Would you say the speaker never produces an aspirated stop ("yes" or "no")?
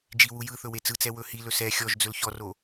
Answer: yes